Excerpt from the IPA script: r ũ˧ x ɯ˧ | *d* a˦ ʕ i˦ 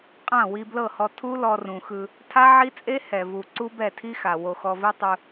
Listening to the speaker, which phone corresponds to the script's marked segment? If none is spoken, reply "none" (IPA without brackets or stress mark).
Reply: tʰ